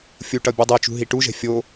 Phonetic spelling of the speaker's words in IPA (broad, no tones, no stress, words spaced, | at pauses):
fʲuʈʌ bʲudˤet͡ʃṳ ɦiʈuʒɛ̤ fʲo